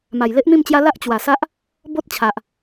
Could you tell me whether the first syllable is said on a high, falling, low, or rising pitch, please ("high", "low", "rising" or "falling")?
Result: low